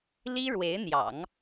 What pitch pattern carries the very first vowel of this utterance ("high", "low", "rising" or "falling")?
high